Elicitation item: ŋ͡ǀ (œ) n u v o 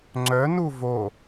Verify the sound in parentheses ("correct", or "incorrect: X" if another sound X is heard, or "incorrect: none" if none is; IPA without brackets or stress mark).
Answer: correct